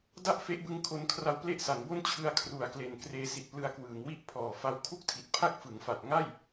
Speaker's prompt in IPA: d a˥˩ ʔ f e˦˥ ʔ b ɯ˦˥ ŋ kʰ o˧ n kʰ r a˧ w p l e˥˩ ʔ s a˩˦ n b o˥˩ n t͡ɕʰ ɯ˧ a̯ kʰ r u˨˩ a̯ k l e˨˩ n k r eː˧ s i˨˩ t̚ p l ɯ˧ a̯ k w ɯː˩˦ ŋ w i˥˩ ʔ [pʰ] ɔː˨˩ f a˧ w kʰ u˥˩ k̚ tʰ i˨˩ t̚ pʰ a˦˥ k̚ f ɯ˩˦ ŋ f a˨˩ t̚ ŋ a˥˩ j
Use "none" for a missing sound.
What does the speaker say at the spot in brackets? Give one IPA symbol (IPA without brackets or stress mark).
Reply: pʰ